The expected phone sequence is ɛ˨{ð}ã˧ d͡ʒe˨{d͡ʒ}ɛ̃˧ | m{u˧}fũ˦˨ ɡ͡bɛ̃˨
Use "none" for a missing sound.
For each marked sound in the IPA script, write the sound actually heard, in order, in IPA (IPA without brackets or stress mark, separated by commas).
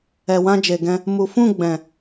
w, ɡ, u˨